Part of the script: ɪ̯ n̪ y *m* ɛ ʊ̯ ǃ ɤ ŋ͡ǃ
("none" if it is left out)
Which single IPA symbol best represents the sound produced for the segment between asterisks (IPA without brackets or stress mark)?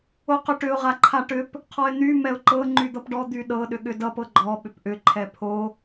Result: m